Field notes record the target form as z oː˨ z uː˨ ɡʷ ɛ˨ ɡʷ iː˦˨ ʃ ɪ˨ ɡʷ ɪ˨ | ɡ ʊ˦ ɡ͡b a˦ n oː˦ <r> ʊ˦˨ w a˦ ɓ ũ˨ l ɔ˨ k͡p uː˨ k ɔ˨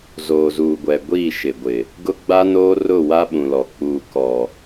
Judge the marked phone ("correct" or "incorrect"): correct